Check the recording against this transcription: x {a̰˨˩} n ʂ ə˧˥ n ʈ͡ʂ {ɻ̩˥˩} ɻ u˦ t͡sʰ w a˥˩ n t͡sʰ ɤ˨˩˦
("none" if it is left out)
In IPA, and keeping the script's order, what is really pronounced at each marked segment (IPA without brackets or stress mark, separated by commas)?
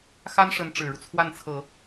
a˥, ɻ̩˨˩